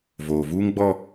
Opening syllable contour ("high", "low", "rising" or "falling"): low